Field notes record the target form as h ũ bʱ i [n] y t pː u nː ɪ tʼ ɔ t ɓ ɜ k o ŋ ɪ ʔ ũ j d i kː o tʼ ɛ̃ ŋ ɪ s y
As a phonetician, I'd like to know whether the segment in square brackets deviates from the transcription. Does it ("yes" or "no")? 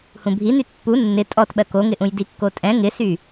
no